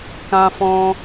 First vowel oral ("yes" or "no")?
no